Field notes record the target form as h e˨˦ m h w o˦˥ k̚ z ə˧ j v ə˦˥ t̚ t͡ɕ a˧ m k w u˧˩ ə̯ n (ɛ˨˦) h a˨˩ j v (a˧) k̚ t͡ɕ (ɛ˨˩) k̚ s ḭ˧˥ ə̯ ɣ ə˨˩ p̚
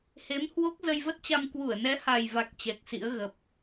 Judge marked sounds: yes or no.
yes, no, yes

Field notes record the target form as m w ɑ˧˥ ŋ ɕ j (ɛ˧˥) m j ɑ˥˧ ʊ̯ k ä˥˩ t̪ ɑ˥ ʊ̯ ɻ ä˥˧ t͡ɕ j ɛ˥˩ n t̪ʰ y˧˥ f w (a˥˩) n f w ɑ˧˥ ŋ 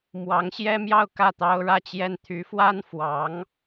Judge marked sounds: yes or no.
no, no

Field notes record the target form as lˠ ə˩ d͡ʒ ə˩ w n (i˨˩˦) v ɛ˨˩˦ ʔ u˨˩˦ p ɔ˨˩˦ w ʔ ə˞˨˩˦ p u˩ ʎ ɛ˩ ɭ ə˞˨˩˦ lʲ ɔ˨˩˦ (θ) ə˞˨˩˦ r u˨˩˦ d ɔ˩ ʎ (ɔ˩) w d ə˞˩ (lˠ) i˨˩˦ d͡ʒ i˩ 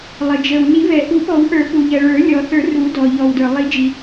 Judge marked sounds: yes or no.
yes, yes, yes, yes

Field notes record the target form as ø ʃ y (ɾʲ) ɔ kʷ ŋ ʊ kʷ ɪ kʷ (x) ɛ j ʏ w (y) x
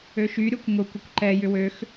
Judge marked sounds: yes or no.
yes, no, no

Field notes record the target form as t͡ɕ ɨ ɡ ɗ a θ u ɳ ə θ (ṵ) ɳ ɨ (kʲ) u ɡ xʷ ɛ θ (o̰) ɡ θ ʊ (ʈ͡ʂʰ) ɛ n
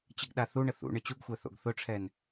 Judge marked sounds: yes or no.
yes, no, yes, yes

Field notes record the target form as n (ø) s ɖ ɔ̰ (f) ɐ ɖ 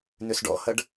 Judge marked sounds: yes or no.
yes, no

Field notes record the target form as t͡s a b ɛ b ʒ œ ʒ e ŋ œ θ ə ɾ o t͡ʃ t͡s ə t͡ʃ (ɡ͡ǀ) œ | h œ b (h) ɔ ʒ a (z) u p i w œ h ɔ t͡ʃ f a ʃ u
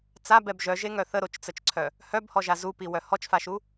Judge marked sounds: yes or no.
no, yes, yes

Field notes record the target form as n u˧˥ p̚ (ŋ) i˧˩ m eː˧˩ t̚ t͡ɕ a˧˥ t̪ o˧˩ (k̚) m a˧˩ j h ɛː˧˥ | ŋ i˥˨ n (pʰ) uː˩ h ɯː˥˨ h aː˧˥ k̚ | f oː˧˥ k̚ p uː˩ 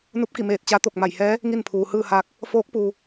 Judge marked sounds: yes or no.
no, yes, yes

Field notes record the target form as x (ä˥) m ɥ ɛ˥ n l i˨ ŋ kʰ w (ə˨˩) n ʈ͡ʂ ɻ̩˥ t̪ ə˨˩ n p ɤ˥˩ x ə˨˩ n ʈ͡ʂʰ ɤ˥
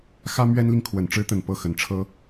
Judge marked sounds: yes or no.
yes, yes

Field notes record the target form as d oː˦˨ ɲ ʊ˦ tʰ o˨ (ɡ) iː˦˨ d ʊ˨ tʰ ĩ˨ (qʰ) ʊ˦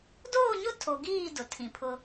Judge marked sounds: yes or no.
yes, no

